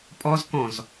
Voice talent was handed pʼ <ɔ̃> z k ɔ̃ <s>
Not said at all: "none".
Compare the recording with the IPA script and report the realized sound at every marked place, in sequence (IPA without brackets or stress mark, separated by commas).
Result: ɔ, z